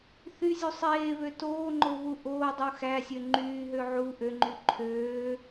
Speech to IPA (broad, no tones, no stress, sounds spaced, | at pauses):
θ y zʲ u sˤ eː β ø t oː ŋ͡ǃ o β u ʔ oː dˤ u x æ sʲ ø ŋ͡ǃ yː ɦ ø ʕ u ʔ ø ŋ͡ǃ y ǃʰ øː